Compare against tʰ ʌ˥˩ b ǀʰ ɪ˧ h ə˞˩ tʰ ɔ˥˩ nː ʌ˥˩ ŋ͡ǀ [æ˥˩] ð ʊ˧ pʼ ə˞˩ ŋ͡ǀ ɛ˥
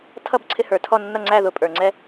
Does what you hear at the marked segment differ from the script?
no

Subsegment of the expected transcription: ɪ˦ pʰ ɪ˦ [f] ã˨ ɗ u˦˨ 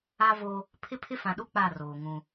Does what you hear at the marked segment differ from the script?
no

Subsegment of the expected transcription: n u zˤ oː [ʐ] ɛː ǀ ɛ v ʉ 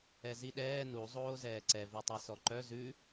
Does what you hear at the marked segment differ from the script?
yes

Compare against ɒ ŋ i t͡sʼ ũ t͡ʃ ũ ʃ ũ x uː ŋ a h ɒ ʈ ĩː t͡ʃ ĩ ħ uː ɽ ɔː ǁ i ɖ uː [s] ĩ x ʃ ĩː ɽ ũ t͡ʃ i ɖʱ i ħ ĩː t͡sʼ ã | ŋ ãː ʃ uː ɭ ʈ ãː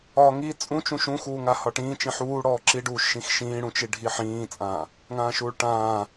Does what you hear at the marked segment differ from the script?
yes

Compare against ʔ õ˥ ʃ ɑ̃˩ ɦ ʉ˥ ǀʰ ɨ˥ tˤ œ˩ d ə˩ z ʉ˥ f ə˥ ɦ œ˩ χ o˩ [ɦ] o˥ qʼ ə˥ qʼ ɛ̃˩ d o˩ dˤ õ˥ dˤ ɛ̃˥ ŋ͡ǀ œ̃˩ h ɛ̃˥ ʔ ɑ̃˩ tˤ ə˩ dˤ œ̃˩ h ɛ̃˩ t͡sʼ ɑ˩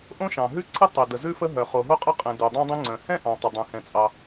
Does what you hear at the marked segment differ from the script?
no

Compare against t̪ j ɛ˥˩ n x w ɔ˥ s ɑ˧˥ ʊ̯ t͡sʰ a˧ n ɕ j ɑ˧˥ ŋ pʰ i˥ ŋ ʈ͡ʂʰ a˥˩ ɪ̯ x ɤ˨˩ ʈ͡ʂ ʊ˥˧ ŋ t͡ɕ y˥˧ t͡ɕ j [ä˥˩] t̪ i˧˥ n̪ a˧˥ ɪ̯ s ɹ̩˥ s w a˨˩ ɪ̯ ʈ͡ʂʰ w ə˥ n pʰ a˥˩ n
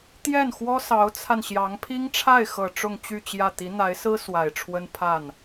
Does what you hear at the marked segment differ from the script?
no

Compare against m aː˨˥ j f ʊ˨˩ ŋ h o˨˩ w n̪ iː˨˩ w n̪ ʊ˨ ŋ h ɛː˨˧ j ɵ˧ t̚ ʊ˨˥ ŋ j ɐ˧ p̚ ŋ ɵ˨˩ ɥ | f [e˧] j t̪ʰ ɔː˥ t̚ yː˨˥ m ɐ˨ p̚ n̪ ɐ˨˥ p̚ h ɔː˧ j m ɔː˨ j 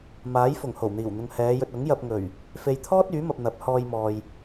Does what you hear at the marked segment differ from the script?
yes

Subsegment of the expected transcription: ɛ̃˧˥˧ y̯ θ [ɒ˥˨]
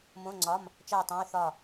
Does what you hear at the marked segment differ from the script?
no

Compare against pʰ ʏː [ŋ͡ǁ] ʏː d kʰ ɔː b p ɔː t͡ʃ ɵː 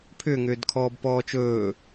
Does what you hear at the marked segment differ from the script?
yes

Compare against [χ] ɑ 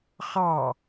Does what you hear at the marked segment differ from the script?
no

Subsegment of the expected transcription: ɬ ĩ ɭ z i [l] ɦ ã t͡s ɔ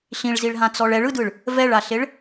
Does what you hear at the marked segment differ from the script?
yes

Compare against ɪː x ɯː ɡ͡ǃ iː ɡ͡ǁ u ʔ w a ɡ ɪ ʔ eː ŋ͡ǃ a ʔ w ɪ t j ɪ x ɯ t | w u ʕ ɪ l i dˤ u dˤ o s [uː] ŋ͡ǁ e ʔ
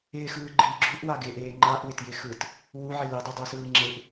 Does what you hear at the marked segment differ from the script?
yes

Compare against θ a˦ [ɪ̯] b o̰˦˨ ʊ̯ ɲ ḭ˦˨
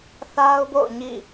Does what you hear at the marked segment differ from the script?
yes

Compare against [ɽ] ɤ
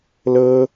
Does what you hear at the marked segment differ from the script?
yes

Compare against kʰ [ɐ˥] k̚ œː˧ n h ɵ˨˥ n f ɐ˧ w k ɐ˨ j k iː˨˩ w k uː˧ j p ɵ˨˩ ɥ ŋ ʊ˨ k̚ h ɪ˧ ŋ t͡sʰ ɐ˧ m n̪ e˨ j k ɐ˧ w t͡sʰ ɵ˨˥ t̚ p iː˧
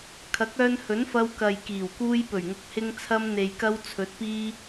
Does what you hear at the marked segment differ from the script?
yes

